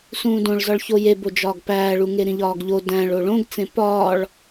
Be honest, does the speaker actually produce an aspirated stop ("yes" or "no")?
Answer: no